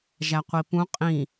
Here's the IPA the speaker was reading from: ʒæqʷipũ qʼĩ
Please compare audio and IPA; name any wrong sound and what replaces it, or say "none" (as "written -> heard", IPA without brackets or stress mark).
none